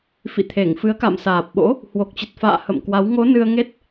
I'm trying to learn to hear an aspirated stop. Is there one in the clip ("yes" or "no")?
yes